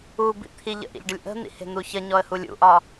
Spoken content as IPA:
u b ḭ t̪ʰ i ʎ ə̰ ʔ ḭ ʎ ɖ ə lʲ ʔ ə̤ n̪ ḭ h e̤ n̪ u ç ə ɲ ɔ ə̯ h u lʲ ṵ ʔ ɒ

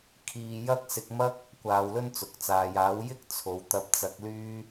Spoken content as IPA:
kʰ iː˧ j ɐ˥ k̚ s ɪ˧ k̚ m ɐ˥ k̚ | kʷ aː˧ w l ɵ˥ n t͡s ʊ˨ k̚ t͡s aː˨ j aː˨˥ w j ɪ˥ k̚ t͡sʰ o˨ w t̪ ɐ˧ p̚ t͡s ɐ˧ k̚ l yː˥

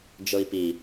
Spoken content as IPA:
d͡ʒ ɤ i̯ p i

